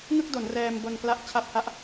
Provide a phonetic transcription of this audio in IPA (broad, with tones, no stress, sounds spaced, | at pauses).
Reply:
ŋ ɯ˥˩ k̚ d o˩˦ n r ɛː˧ m b o˧ n k l a˦˥ ʔ t͡ɕʰ a˦˥ p̚ h a˦˥ ʔ